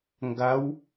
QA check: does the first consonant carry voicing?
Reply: yes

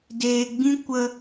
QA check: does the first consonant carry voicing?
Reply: yes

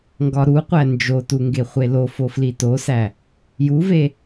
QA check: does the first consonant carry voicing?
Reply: yes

